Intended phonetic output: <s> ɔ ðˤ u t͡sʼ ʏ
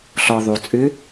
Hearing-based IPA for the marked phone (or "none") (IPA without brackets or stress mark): ɬ